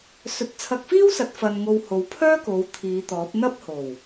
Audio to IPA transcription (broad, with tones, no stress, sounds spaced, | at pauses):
s ɵ˨˥ t̚ t͡sʰ ɐ˧ k̚ f iː˥ w s ɐ˨˥ t̚ f ɐ˧ n ŋ o˧ w h o˨˧ w pʰ œː˥ k o˨˧ w t̪ʰ iː˨˧ t̪ ɔː˨˥ p̚ n̪ ɐ˥ p̚ h o˨˩ w